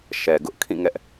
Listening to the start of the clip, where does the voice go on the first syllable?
low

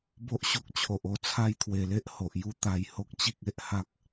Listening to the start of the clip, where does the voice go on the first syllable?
high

